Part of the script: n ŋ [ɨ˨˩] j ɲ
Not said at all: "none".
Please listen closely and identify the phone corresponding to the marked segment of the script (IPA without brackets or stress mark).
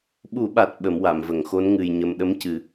ɨ˨˩